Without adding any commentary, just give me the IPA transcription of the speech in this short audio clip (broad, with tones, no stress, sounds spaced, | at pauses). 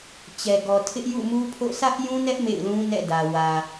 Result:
t͡ɕ ɛ˨ ɡ ɔ˨ tʰ ɪ˦ ʔ j ṵ˦˨ m u˦ pʰ o̰˦˨ s ä˦ ʔ j ũ˦ n ɛ˦ ʔ m ḛ˦˨ ɪ̯ l ũ˦ n ɛ̰˦˨ d ä˨ w ä˨